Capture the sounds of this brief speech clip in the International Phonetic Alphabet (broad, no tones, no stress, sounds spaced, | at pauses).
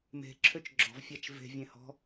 m e̤ ǁʰ ø t͡ʃ ɡ͡ǁ ɔ̤ v fʲ a t͡ʃ v e̤ vʲ ẽ h ɔ̤